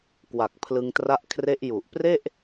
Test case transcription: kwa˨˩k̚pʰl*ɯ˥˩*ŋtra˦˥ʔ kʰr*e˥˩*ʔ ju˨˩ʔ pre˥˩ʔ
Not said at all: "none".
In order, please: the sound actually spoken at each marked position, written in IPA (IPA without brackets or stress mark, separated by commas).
ɯ˧, e˦˥